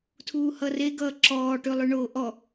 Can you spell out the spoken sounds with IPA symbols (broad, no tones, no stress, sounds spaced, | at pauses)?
tʰ uː h ʌ r e ɡ ʌː ǁ ɔː ʈ ʉ lˠ ʉ ɳ oː ʔ ɔ